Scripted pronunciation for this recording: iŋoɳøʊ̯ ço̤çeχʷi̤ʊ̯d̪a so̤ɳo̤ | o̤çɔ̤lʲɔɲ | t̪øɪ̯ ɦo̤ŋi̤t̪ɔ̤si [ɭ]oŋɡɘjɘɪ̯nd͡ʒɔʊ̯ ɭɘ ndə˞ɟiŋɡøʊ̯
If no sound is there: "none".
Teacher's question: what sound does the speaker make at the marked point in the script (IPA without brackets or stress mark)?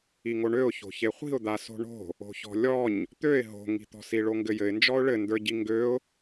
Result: ɭ